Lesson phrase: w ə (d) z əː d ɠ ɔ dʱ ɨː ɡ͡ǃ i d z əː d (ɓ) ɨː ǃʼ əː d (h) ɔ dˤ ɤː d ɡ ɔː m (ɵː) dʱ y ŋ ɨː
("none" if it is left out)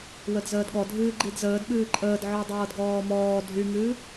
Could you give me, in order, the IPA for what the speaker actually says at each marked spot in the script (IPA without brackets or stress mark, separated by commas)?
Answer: d, ɓ, ʕ, ɔː